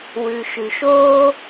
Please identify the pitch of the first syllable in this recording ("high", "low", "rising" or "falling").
low